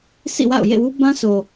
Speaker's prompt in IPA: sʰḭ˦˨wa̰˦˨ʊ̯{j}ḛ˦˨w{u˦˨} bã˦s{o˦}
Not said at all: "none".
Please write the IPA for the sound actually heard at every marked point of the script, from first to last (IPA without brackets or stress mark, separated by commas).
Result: j, u˦, o˨